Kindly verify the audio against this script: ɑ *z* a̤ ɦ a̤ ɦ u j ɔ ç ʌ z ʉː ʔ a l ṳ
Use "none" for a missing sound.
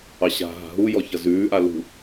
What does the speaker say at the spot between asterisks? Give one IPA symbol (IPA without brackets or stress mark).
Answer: ɕ